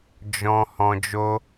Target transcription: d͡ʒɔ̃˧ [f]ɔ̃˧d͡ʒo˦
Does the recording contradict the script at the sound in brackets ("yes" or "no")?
yes